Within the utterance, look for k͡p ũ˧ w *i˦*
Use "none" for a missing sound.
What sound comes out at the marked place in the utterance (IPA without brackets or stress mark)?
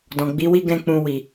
i˨